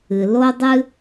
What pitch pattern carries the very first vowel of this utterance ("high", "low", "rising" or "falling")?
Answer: low